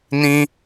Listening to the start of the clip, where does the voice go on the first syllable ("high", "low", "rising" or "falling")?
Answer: high